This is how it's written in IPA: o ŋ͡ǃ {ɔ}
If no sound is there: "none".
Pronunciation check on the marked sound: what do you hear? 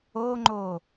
o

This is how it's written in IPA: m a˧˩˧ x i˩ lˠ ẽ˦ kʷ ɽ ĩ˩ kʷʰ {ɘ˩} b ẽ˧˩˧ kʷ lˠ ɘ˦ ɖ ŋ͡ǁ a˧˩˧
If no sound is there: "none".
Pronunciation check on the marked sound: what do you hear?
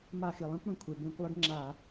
e˩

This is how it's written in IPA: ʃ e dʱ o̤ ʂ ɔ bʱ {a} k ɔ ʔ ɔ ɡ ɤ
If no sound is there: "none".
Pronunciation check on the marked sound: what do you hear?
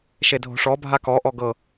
a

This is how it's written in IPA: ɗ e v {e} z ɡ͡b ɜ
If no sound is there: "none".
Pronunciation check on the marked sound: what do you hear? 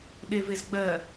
e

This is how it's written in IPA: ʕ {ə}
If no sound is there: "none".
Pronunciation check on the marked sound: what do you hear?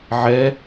ɛ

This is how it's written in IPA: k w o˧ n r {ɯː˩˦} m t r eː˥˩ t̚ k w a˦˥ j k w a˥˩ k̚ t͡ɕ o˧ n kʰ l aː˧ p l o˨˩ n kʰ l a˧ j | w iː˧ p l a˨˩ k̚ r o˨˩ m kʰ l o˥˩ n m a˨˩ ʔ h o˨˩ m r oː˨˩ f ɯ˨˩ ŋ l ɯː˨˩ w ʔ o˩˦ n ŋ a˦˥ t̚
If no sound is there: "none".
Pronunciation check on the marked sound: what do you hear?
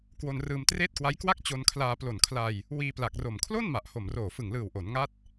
ɯː˧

